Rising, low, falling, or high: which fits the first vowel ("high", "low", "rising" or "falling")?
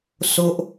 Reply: high